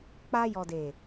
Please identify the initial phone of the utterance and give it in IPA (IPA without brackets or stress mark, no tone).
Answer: k͡p